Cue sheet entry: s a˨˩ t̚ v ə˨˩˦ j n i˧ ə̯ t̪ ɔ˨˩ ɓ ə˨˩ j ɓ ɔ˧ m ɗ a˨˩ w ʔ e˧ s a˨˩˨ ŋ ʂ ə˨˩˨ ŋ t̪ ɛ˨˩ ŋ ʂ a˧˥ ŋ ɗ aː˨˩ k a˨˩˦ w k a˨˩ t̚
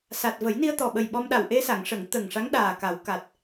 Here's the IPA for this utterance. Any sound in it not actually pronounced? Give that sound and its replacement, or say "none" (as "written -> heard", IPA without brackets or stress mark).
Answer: ɛ˨˩ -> ə˨˩